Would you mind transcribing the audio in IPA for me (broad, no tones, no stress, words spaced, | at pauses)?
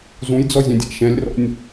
zũjd͡zɔzʲɛ̃dʲa̰ ʃɛ̃lʲrɔ̰nʲ